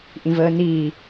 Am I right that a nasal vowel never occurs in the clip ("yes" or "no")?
no